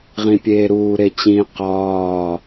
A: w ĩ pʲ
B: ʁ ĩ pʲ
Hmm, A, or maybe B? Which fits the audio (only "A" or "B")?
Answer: B